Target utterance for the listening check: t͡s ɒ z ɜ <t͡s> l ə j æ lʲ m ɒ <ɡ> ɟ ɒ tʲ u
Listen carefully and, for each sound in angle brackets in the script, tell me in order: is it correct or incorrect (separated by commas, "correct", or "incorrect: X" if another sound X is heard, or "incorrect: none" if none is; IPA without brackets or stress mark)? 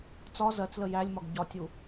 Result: correct, correct